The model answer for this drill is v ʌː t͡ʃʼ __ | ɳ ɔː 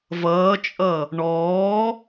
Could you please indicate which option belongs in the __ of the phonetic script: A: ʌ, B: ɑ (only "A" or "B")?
A